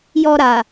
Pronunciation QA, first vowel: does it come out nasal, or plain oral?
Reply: oral